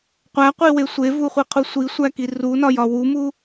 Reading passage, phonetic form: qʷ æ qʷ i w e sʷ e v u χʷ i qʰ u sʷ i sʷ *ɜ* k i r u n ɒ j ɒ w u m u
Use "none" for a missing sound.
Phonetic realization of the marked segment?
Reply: æ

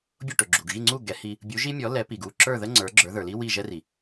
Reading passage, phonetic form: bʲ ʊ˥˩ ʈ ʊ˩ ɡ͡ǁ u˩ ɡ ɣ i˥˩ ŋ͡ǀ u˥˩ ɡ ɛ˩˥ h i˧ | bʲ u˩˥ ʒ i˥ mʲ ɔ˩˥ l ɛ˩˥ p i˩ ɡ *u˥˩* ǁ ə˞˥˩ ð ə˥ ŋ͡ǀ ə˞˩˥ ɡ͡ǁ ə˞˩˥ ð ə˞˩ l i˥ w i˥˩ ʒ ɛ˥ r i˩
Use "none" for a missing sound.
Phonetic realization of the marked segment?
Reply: u˥˩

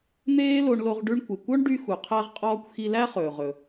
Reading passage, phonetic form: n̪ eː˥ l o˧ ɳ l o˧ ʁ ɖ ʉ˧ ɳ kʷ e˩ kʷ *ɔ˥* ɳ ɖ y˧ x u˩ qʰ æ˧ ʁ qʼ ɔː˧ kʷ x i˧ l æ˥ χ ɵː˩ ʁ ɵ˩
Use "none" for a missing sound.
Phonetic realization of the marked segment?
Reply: ɔ˥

